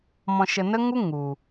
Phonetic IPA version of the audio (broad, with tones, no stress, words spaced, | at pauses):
mɔ̃˧ʃə˧nə˦ŋu˦ ŋu˨